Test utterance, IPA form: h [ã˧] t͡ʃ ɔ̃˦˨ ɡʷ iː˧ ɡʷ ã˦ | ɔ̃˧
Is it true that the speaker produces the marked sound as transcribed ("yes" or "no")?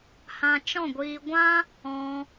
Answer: yes